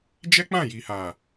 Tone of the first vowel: high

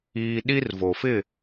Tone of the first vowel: high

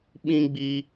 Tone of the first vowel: high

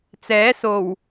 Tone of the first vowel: rising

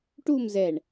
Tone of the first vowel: falling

